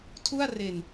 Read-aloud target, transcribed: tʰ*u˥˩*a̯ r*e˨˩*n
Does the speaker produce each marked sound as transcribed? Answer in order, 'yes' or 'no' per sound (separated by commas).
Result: yes, yes